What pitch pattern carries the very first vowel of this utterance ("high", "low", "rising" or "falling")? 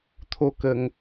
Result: high